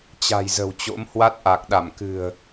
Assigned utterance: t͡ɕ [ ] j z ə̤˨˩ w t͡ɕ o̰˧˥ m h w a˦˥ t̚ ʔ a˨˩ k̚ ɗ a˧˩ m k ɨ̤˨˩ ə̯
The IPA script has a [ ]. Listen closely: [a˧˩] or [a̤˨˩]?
a̤˨˩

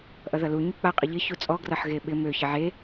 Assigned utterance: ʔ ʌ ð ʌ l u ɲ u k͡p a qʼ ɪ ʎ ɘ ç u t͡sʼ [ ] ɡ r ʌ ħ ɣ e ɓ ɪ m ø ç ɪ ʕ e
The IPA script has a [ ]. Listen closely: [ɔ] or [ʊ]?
ɔ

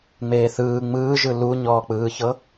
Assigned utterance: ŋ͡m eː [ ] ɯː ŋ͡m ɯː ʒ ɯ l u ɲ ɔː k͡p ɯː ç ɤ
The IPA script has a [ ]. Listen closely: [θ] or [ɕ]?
θ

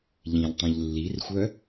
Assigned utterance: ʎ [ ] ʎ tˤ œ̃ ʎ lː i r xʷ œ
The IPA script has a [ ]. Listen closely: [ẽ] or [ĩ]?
ĩ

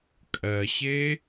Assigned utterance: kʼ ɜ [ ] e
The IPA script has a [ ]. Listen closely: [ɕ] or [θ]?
ɕ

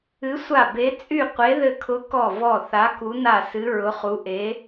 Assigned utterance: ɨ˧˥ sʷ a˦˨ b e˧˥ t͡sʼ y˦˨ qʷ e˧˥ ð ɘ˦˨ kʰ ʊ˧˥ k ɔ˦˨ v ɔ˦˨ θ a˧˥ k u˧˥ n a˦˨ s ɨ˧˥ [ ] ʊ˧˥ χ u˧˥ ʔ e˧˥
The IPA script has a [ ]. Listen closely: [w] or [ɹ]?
ɹ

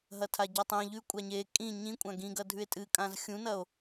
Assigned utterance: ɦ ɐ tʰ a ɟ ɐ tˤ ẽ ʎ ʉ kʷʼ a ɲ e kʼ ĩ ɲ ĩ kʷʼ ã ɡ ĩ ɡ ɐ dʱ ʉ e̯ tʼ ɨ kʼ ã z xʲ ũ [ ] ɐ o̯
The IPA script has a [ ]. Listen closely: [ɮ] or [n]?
n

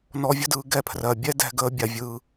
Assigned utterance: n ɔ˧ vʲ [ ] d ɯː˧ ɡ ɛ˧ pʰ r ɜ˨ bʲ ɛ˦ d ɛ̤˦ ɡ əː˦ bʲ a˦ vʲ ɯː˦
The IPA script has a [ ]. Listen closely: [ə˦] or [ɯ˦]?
ə˦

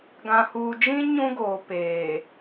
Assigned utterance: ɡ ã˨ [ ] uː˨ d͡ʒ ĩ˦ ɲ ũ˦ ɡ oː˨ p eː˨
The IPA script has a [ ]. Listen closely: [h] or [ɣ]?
h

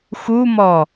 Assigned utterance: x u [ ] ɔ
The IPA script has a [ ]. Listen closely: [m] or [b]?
m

